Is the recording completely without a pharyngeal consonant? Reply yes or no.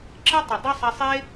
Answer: yes